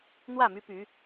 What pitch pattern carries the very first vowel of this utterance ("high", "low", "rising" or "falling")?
falling